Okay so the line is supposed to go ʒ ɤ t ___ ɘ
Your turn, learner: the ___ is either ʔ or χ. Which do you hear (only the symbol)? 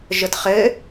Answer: χ